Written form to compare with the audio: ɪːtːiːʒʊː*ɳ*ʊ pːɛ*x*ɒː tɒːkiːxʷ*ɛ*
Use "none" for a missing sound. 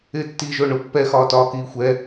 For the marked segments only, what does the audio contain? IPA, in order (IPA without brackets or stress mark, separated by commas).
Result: ɳ, x, ɛ